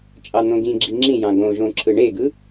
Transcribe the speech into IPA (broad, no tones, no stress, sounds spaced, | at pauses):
t͡ʃʼ ɑ n̪ õ ɡ ĩ ɡ͡ǁ i ŋ͡ǁ ĩ j ɑ̃ ɡ õ ʒ õ ǁʰ ɯ ɳ e ɡ ɯ